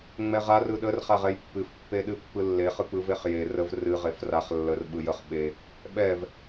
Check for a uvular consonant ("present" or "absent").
present